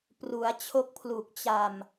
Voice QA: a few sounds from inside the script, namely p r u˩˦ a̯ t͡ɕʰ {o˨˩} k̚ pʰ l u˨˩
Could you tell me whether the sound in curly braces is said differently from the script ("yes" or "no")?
yes